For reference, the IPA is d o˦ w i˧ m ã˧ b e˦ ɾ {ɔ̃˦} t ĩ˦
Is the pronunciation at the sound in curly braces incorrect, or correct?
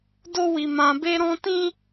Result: correct